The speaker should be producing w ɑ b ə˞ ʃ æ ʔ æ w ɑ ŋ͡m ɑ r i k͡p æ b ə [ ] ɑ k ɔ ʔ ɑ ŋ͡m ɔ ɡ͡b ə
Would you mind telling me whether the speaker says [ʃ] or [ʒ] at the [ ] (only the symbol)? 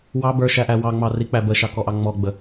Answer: ʃ